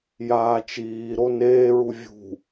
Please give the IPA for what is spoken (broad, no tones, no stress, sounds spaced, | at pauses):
j aː t͡ʃ iː ɾ o n eː ɹ u vʲ ṳ